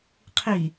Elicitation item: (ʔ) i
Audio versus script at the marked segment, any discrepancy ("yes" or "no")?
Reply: yes